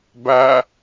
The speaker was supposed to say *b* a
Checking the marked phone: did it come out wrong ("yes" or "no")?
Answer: no